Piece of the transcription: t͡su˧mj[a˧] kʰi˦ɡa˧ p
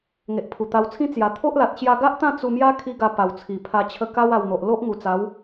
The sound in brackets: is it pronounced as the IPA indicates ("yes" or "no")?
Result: no